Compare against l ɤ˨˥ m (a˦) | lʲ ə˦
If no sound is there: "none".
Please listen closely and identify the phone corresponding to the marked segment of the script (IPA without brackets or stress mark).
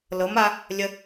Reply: a˦